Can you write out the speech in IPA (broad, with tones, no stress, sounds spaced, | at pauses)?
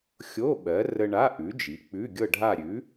xʲ o˧˥˧ ɓ ɜ˨˥ r ə˧ ɳ a˧˥˧ ʔ ʉ˨˥ d͡ʒ i˨˥ k͡p ʉ˧˥˧ ɡʲ ɤ˥˧ ɖʱ a˥˧ ɾʲ ʉ˨˥